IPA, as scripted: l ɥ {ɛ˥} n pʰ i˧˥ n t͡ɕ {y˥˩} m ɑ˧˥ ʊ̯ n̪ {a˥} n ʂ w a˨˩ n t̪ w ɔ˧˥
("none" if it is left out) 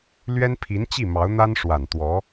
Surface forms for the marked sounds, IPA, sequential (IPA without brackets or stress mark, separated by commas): ɛ˥, i˥˩, a˥